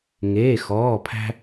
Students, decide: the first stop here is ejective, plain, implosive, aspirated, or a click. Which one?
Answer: aspirated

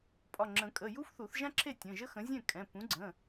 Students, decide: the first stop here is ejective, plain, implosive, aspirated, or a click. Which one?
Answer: ejective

